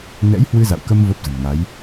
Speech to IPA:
n ɛ̰˧˥ j h w ɨ˧ z a̰˧˨ w k ə˧ m v ə˦˥ p̚ z ə̤˨˩ m ŋ a˨˦ j

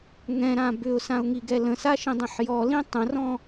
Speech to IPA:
ŋ ɛ̃ ɾ ã b ʏ ʊ̯ s ã ʊ̯ ŋ i ɡ ɛ l ə̃ s a ʃ ĩ dˤ ɛ̃ ħ j ɔ l ĩ tˤ ə̃ r ɔ̃

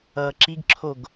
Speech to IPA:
ʌː ǁ i ɡ ǁʰ o ɡ

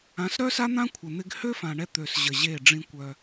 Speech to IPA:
ã˨˦ s ɾ œ˦ s a˦ n̪ ã˦ kʷʰ ə˨ n̪ ɪ˧ ɡ h ø˦ f ã˨ ɳ ɛ˧ t̪ ø˨ s ʑ ə˨ ʑ e˦˨ ɖ͡ʐ ĩ˧ kʷ œ˧

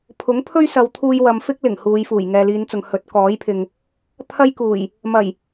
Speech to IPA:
pʰ ʊ˨˥ ŋ pʰ ɵ˥ ɥ s ɐ˨˧ w t̪ʰ uː˧ j w ɐ˨ m f ɪ˥ k̚ l ɪ˨˩ ŋ h uː˨˧ j f uː˨˩ j ŋ ɛː˨ l iː˨˧ n t͡s ʊ˨ ŋ h ɵ˨˥ t̚ k ɔː˨˥ j pʰ ɪ˨ ŋ | t̪ʰ ɐ˥ j k uː˨˩ j | m ɐ˨˩ j

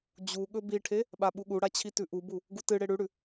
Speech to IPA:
d͡ʑ u ɠ ɵ b i ʈʰ e | ɓ a ɓ u ɠ u ɽ a t͡ɕʰ i t ʉ ʔ u b u | ɡ u t ɨ ɽ e ɽ ʉ ɽ ʉ

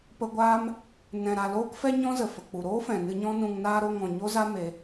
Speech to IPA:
p ə˧ ɡʷ aː˦ m | n ɛ̃˨ ɾ a˨ l oː˦ k f ɛ˦ ɲ ɔ̃˦ z ə˨ f ə˨ k͡p u˨ ɾ oː˦ f ɛ̃˨ n ɨ˧ ɲ ɔ̃˦ n ũ˧ ŋ n aː˦ ɾ o˧ ŋ ɔ̃˨ ɲ o˧ z a˧ m e˧

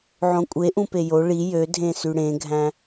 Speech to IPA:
ʕ õ kʷʼ e ʔ ũ p e j o ɭ i j ø dʱ ẽ s y ɽ ẽ ɡʱ æ̃

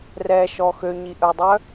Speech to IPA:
r ɛ ʃ ɔ x ø ɲ i ʔ œ dˤ œ

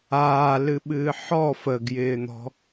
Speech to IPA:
aː l ɨ ɓ ɨː ħ ɔ f ə ɡ j ɪː n̪ ɔ̤

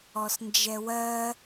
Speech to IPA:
ɔ s n d͡ʒ ɛ w ɜ

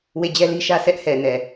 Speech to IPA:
w e˦˨ d͡ʑ ɛ˦ l i˦ ʃ ä˦ sʰ ɛ˦ ʔ h ɛ˨ n ɛ˨

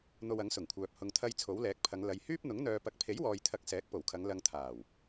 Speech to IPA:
n̪ o˧ w ɐ˨˥ ŋ s ʊ˨˩ ŋ kʷʰ œː˨ p̚ h ʊ˨ ŋ t̪ʰ ɐ˧ j t͡sʰ o˨˥ w l ɛː˨˥ k̚ pʰ ɐ˨˧ ŋ l ɐ˨ j h yː˥ p̚ n̪ ʊ˨˥ ŋ n̪ œː˨ p ɐ˨˥ k̚ pʰ e˨˥ j w ɔː˨ j t̪ʰ ɐ˨˥ k̚ s ɛː˨˥ k̚ p o˨˩ w kʰ ɐ˨˧ ŋ l ɐ˧ ŋ t̪ʰ aː˨˩ w

